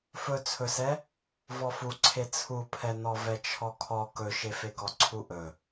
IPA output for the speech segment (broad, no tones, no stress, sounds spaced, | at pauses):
f ɵ t͡sʰ ɵ s ɛ | v ɔ f u ǀʰ e t͡sʰ u pʰ ɛ n ɔ v ɛ t͡ʃʰ ɔ kʰ ɔ k ɵ ʃ e f e k ɔ ǀʰ u ʔ ɵ